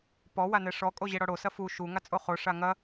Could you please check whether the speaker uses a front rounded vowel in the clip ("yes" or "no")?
no